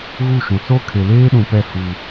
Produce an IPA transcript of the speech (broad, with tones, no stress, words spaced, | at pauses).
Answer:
ɣu˦˨ʃũ˨ so˦ kʰe˨leː˦ɗũ˨pɛ˦˨ hu˦